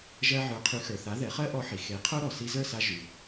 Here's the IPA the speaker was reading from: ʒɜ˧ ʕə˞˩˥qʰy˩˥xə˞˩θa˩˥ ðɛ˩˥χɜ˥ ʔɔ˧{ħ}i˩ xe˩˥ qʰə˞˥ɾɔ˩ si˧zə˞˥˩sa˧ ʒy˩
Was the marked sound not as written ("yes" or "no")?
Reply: no